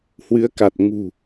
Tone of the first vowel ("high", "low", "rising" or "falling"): rising